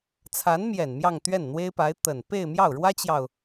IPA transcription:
t͡sʰ a˧˥ n m j ɛ˨˩ n m j ɑ˥˧ ŋ t̪ ɥ ɛ˥˩ n n̪ w e˥ ɪ̯ p a˧˥ ɪ̯ t̪ ə˨˩ n p e˥˧ ɪ̯ m j ɑ˥˩ ʊ̯ ɻ w ä˥ t͡ɕ j ɑ˨ ʊ̯

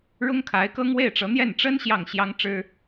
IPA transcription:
ɻ ʊ˥ ŋ kʰ a˧˥ ɪ̯ k ɤ˥ ŋ w e˥˩ ɪ̯ ʈ͡ʂ ɤ˧˥ n̪ j ɛ˥˩ n ʈ͡ʂ ə˥ n ɕ j ɑ˥˩ ŋ ɕ j ɑ˥ ŋ ʈ͡ʂ ɻ̩˥

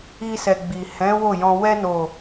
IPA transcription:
i˧ s ɛ˨ ɡ͡b i˨ h ɛ̃˨˦ w o˦˨ j ɔ̃˧ w ɛ˧ n o˨

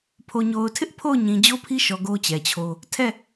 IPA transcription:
pʰ o˨ ɲ o˨ ʊ̯ tʰ ɪ˦ ʔ pʰ o˦˨ ʊ̯ ɲ ĩ˨ d͡ʑ o˦ pʰ i˦ ʃ ɔ˨ ɡ o˦ t͡ɕ ɛ˨ t͡ɕʰ o˦ | tʰ ɛ˦˨

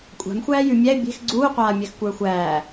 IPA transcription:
kʷʼ a̤ m xʷ æː j ʉ mʲ æ ɪ̯ bʲ e̤ x ɡ͡ǀ uː qʷ aː mʲ æ x kʷ ə˞ xʷ æː

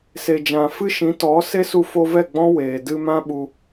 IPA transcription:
s e˨ d͡ʒ ã˨ f ɨ˦ ʃ ĩ˨˦ t ɔ˨˦ s e˦ s u˧ f o˧ v ɛ˦˨ ɡ͡b ɔ̃˦ w eː˨ d ɨ˧ m ã˦ ɓ u˧

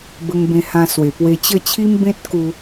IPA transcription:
b ə˧ ŋ b ẽ˧ h ã˧ s w e˨˩ p w e˧ t͡ɕ ə˥˧ t͡ɕʰ i˦ m b ẽ˦ t̚ k u˧

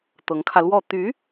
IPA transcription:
t̪ ɤ˧˥ ŋ kʰ ä˧ l w ɔ˥˩ t̪ y˧˥

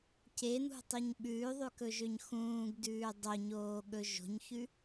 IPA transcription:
c e n̪ ṳ tˤ œ ɲ ɓ ʉː ðˤ ʉ k ɵ ʒ ø ɲ x ũː ɡ d ʉː dˤ o ɲ oː ɠ ɵ ʒ o̤ ɲ ç ʉ

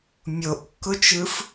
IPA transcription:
mʲ o ʔ kː ʊ t͡ʃ ɯ f

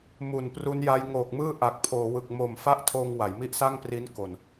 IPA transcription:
m u˨˩ n p r u˦˥ n j a˦˥ j ŋ oː˨˩ k̚ m ɯː˥˩ ʔ a˨˩ k̚ pʰ oː˩˦ w ɯ˨˩ k̚ m o˨˩ m f a˥˩ ʔ tʰ oː˧ ŋ w a˩˦ j m i˦˥ ʔ s a˥˩ ŋ p r i˦˥ n k o˨˩ n

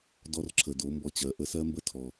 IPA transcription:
d ɔ˧ r ǁʰ ə˩ d o˩˧ m b ɔ˧ t͡ɕ ɜ˩˧ ʔ ə˧ s ɜ˥ m b ə˥ tʰ ɔ˩

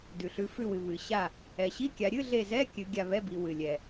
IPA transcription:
d ʉ˩ ɬ ʉ˩˧ f ʉ˧˩ w ɨ˩ β ɨ˩ ɕ a˧˩ | ɛ˩ ɕ i˧˥˧ kʲ a˩˧ ɾʲ ɨ˧˥˧ ɮ e˧˩ z ɛ˧˥˧ kʲ ɨ˩˧ ɡʲ a˧˩ β ɛ˧˥˧ b i˩˧ w ɨ˩ lʲ ɛ˩

